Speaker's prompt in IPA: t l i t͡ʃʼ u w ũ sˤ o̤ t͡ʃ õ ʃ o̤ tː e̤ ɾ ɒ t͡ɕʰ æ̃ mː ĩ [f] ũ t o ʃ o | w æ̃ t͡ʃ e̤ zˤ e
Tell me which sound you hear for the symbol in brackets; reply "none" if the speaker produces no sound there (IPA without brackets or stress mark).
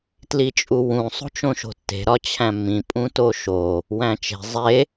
pʼ